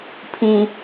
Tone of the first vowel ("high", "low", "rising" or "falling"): low